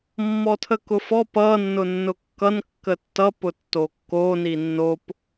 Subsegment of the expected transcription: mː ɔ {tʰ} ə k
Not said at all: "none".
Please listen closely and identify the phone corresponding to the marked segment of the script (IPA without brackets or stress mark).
tʰ